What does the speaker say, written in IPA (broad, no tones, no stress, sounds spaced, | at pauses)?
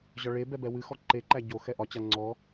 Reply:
ʑ ɒ ɭ e b ɛ b ɛ w ɨ x ɔ ǃ e ǃ æ ɟ o x ɛ ʔ ɒ t͡ɕ a ŋ͡ǀ ɔ